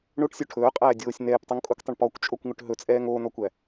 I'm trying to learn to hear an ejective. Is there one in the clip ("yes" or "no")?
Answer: yes